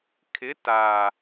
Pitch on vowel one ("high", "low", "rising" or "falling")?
rising